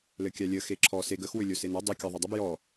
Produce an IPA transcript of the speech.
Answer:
l ɘ kʲ a lʲ ə x e ǁʰ ɔ s e ɡ ə x w ʏ lʲ o s e n a dˤ ɛ kʲ ɔ ðˤ ø dˤ ʏ b j ɔ

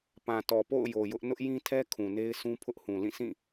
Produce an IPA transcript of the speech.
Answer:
p ã˨ t ɔ˨ p o̰˦˨ ʊ̯ j o˨ j ʊ˦ ʔ n ʊ˦ ʔ j ĩ˦ tʰ ɛ˦ kʰ ũ˨ n e˦ ɪ̯ sʰ ũ˦ pʰ ʊ˦ ʔ h ũ˨ l ĩ˦˨ sʰ ĩ˦˨

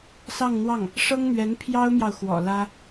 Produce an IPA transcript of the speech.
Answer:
s ɑ˥˧ ŋ n̪ w ɑ˥˩ ŋ | ʂ ɤ˥ ŋ n̪ ɥ ɛ˧˥ n pʰ j ɑ˥ ʊ̯ m j ɑ˨ ʊ̯ x w ɔ̰˨˩ l ä˥

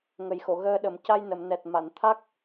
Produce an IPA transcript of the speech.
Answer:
ŋ ə˨˩ j x o˨˩˨ ɣ əː˧ ɗ ə˨˩˦ m c a˧ j n ə˨˩˨ m n ɛ˨˩ t̚ m a˨˩˨ n t̪ʰ a˦˥ k̚

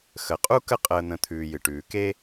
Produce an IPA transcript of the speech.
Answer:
x ə˨ qʼ u˦ k ə˦ qʼ əː˧ n̪ ə̃˧ t̪ʰ ʉː˨ j ɨ˨ ʈ ʉː˨ k e˦

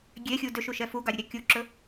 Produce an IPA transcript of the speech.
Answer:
ɡʲ e xʲ u d ø ʃ u ʃ ɛ f u ɡ ɑ ɾʲ ɵ ɾʲ ɑ kʲ u ǁ ɵ

